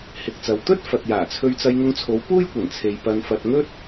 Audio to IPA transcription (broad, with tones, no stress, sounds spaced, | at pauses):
h ɪ˨ k̚ t͡s ɐ˨ w t̪ ɵ˥ t̚ f ɐ˨ t̚ j aː˨˩ t͡sʰ ɵ˧ ɥ t͡s ɐ˧ j ŋ ʊ˧ ŋ t͡sʰ o˨˧ w p uː˥ j kʷ ɐ˨˩ n t͡sʰ e˨ j p ɐ˧ n f ɐ˧ t̚ ŋ ɵ˥ t̚